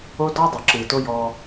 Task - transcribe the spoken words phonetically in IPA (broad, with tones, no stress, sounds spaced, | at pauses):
o˦ d ɔ˦ dˤ ɯ˨ ǁ ɯː˨ t o˦ j ɔ˦